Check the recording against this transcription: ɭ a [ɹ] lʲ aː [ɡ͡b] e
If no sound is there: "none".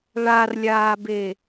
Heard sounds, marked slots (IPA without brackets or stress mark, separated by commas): r, b